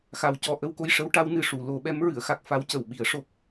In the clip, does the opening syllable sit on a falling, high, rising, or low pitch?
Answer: low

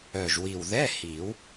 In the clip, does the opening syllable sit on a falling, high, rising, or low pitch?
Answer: low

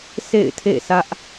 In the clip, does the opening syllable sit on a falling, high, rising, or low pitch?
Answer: falling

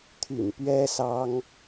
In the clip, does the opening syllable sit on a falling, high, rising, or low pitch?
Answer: low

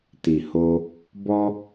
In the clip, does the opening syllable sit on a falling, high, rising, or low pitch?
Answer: low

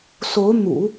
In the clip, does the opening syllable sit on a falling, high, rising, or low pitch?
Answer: rising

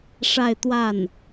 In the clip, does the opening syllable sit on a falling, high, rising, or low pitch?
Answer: falling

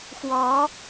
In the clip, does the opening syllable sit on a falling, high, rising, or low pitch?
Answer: rising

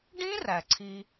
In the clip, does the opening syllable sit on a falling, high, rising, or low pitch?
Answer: high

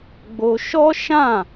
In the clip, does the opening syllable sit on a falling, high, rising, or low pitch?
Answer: high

